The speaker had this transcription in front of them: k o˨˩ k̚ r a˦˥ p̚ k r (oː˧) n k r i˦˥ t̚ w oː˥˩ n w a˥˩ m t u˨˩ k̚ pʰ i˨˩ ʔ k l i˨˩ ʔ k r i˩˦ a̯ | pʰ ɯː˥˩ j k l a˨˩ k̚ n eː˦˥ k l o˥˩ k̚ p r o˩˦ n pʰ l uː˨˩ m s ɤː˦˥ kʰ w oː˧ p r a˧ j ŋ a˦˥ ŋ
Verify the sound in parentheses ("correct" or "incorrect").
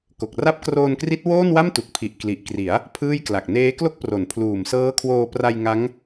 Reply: correct